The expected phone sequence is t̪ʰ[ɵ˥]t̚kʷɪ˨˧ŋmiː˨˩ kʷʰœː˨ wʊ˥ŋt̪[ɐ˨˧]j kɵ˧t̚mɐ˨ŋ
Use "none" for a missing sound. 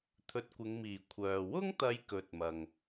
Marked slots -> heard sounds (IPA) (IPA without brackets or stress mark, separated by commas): ɵ˧, ɐ˨˧